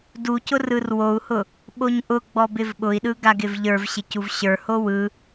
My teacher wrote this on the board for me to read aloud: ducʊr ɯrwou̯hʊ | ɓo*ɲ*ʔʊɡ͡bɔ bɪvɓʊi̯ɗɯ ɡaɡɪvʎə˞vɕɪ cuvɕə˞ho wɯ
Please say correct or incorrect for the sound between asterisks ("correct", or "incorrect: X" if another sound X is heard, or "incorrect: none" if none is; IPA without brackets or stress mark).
correct